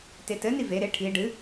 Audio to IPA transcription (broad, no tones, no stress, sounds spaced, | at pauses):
t e t ɘ n i v e ɾ e ʈʰ i ɖ ɨ